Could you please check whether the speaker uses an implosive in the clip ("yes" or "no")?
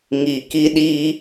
yes